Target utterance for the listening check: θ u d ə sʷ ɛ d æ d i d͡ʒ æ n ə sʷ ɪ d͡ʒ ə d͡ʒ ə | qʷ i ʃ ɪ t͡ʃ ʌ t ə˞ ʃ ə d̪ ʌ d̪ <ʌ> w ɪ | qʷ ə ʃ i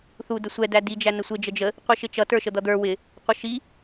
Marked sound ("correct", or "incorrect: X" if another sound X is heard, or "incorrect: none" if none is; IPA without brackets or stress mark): incorrect: ə˞